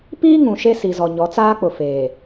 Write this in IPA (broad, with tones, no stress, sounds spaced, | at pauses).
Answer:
p iː˦ ŋ ũ˨ ʃ e˦ s i˨ z ɔ˨ ɲ ɔ˨˦ t͡s aː˦ k͡p ʊ˨ f eː˨